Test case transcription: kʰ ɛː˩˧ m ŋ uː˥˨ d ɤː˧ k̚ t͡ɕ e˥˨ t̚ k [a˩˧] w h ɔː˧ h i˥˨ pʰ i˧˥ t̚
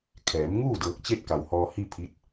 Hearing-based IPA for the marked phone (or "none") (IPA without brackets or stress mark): a˩